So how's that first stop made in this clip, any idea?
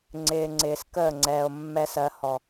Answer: click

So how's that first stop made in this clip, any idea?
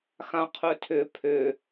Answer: aspirated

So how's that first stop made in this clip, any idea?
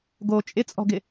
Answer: plain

